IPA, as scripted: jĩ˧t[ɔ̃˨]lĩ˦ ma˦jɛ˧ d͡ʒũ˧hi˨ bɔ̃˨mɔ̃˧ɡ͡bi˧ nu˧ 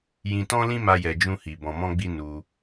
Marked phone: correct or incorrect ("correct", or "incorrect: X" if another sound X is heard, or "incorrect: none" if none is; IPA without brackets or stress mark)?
incorrect: ɔ̃˦